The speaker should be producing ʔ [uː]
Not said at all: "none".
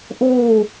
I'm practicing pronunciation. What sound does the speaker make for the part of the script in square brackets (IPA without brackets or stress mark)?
uː